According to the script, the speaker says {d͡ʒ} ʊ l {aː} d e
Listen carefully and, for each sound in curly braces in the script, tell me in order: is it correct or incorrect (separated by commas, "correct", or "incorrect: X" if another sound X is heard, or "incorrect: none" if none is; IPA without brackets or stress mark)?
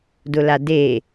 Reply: incorrect: d, incorrect: a